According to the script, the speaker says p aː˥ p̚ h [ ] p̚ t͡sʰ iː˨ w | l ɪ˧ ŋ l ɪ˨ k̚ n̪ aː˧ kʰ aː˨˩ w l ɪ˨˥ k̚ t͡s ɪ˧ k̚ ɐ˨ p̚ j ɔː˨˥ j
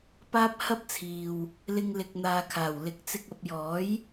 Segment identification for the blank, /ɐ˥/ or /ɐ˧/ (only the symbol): ɐ˥